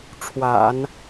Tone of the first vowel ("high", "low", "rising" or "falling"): low